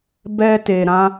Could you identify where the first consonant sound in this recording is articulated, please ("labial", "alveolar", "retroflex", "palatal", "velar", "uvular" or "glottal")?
labial